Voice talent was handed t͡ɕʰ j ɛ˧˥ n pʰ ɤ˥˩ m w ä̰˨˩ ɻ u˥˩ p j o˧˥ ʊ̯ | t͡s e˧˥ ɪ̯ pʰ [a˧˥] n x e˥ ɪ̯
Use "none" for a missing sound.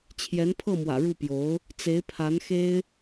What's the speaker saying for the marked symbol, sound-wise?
a˧˥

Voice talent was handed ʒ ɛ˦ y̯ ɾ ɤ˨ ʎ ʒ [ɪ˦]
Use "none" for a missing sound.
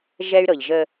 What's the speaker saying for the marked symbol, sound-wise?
ə˦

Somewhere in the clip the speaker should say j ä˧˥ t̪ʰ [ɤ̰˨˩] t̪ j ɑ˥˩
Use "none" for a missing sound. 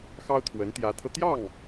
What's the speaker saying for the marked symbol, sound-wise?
ɤ˧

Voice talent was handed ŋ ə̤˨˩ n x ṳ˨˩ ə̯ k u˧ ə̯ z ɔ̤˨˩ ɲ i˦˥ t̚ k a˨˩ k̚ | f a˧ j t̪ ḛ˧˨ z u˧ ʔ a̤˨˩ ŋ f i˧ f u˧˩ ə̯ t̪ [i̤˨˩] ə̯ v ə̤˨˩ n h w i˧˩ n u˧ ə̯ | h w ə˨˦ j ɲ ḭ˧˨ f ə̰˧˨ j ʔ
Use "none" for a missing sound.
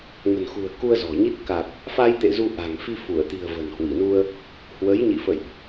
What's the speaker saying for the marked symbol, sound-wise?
i̤˨˩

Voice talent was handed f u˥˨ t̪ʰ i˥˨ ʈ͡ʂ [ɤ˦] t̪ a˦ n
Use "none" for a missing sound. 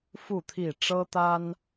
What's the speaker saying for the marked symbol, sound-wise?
ɤ˦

